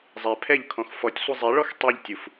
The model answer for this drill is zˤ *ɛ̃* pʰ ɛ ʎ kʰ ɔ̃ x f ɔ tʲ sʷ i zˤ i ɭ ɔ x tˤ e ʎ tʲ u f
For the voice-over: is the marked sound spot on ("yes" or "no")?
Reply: no